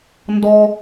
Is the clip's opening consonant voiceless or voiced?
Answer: voiced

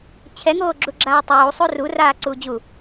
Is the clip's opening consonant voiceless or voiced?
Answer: voiceless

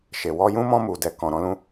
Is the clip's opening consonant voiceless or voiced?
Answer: voiceless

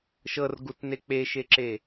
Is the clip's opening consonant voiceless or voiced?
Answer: voiceless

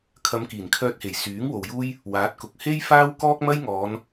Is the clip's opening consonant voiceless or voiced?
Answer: voiceless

